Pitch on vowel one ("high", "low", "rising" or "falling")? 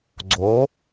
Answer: rising